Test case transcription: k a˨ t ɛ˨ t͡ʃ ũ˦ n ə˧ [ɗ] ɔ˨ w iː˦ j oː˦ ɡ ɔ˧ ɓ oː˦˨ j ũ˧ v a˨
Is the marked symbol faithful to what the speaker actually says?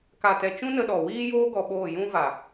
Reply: yes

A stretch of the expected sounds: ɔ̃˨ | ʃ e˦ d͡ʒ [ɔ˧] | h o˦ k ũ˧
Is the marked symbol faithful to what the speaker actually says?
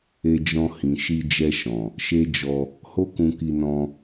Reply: yes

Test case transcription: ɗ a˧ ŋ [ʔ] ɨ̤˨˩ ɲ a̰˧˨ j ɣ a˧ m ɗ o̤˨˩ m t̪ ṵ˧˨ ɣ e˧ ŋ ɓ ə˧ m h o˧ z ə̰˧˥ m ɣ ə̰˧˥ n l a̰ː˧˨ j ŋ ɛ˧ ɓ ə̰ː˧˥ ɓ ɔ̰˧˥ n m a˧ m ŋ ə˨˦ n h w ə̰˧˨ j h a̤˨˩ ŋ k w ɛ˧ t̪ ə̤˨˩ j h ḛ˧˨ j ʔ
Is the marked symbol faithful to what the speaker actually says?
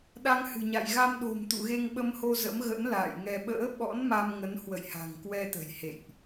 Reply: no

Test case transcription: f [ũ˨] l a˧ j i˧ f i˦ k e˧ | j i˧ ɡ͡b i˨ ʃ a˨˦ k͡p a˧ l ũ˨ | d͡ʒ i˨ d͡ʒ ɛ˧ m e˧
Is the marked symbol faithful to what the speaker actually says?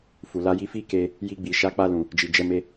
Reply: no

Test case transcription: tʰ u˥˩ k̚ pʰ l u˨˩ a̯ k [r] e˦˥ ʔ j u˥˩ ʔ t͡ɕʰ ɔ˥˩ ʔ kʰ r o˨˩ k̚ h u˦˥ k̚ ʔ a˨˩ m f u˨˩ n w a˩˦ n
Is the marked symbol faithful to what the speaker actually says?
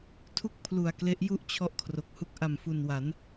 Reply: no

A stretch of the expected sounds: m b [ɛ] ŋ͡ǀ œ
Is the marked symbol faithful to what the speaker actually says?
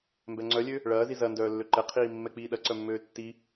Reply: yes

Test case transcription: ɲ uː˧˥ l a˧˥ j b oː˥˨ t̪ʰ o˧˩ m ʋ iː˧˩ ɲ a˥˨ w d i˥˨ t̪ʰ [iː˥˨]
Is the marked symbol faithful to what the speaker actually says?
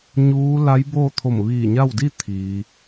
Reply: no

